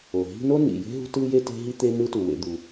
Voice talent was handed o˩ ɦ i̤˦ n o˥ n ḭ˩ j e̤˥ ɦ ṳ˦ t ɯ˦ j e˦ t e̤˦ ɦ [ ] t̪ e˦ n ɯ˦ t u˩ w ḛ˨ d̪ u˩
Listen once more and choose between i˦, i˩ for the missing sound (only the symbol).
i˦